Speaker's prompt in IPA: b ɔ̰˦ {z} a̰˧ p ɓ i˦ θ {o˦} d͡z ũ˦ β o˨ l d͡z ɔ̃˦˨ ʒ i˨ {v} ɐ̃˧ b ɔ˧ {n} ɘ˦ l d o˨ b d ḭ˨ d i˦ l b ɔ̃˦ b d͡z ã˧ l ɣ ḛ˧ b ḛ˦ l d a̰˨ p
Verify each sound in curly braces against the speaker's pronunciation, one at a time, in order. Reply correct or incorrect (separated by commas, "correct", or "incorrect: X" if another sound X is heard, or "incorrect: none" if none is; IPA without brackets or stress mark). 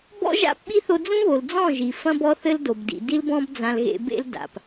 incorrect: ʒ, incorrect: o˧, incorrect: f, incorrect: θ